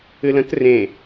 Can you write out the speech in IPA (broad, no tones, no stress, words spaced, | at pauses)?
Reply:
ɨlə̃t rẽ